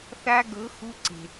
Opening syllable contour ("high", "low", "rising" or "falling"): high